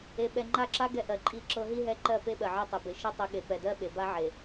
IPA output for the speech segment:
e˨ɓɛ˨ŋ͡ǃa˦˨ǁa˦ ɡɛ˦ʔɜ˨ǃʼi˦˨ǁɤ˦ ɦi˦ɦɛ˦ǃɜ˦˨ pe˦ɓɜ˨ ʕɜ˦tˤe˨be˨ ʃi˦ tˤi˨ɠe˨ pɛ˨dɜ˦ ɓe˨ba˦ ʕe˨

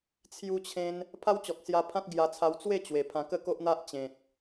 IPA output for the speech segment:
t͡sʰju˦t͡ɕʰẽ˦n | pʰa˦wt͡ɕɔ˨k̚sja˧pʰã˦t̚ ɡja˧t͡sʰa˧w t͡swe˥˧ t͡ɕwe˨˩pʰã˧ kə˥˧ko˦ʔn̪a˦ʔ t͡ɕẽ˨t̚

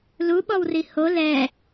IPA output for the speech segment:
lu ɓɔwriho lɛ

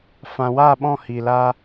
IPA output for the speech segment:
fã˨wa˦˨ɓɔ̃˦˨ hi˨laː˧

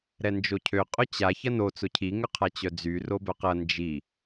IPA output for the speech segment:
ɾɛnd͡ʒocʰø qʼʊt͡ɕa çɐno t͡sʊcʰi ŋʏqʰat͡ɕœd͡zy robœqɐ nd͡ʒi

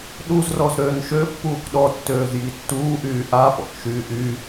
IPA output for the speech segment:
ɗuzrɔz ɾøːnʃøpːuːk ɗɔtːøːz jitːuːʔyː ʔa pɔ̰kʃyːʔy

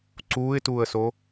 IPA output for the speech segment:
ǀuːɪ̯tuːə̯so

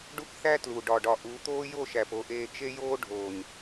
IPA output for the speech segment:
ɖu˦kθæ˦ tlu˨ ɖɒ˨ɖɒ˨ ʔu˨˦t̪oː˦ jo˦˨ʃæ˨p o˨ʔeː˨ t͡ʃe˦joː˦ ɖʱoː˨ɲ

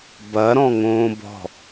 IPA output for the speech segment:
bɐ ɾɔ̃ŋõːbɔ̤

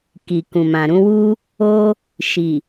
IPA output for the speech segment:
ki˨ kũ˨mã˨ ɾũ˧wu˦ | o˦ | ʃi˨

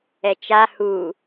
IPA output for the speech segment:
ɛt͡ʃa hu

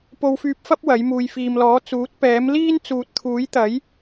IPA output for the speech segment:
po˧wfyː˧p̚fɐ˥p̚ wɐ˨˥j muː˨jfiː˨mlɔː˨˥ t͡suː˨˥t̚pɛː˨˥mliː˥n t͡suː˨t̚t̪ʰuː˨˥jt̪ɐ˨˥j

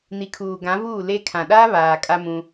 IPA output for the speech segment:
ni˨kʰuː˨ ɡã˨˦vuː˦˨le˦ kʰã˨ɗaː˦ βaː˨kʼa˦mũ˦

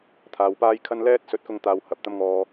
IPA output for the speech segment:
t̪ʰaː˨wpaː˥jkʰɐ˥n lɛː˥t̚sɵ˨˥t̚kʊ˧ŋ t̪aː˧whɐ˨p̚t̪ɐ˥mŋɔː˧

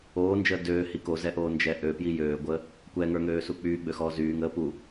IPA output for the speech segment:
oːnd͡ʒəː døːhi kozɛʔoːnd͡ʒɛ ʔøpji jøːɡʷəː | kʷɛŋə˞ŋøːsu k͡pyːɡ͡bøxɔː zyːŋəː pu

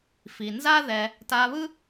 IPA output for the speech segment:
fi˩nza˥ ðɛ˧ | ta˧βɯ˥

